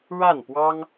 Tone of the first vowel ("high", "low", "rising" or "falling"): falling